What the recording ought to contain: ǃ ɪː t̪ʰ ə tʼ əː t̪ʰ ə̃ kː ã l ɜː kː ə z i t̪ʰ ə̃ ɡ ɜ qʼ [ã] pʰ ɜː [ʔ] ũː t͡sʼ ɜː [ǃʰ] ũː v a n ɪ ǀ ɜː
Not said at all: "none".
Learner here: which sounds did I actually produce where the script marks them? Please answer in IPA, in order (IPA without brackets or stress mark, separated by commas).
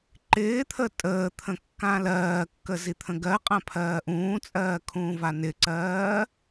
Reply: ã, ʔ, kʰ